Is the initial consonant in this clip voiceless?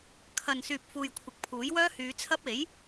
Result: yes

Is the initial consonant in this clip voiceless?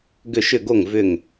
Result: no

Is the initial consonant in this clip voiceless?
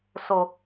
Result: yes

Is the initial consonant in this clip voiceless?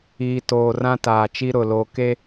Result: yes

